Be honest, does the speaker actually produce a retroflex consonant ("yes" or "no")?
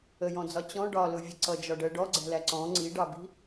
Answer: yes